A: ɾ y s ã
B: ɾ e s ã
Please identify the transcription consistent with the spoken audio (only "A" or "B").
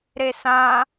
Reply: B